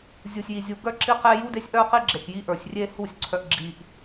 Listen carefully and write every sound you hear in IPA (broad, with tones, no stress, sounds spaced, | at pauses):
zʲ u˨ sʲ j i˨ zʲ u˨ ɡ œ˦ ǁ i˦ q e˦ j u˦ d e˦ sʲ ʔ œ˦ q i˦ ɡ͡ǁ e˨ k j i˦ ʔ ə˞˨ sʲ rʲ e˦ h u˦˨ sʲ ǀʰ œ˨ ʔ ɡ͡ǁ i˨ ʔ